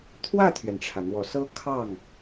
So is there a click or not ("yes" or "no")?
no